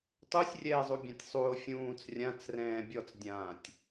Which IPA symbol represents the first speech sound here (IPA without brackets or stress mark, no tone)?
tˤ